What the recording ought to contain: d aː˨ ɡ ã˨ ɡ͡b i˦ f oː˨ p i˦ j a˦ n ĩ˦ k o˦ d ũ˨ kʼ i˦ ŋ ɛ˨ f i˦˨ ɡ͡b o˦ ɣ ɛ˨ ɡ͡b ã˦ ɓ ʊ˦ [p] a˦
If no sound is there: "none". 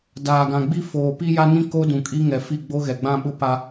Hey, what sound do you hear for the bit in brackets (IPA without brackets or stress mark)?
p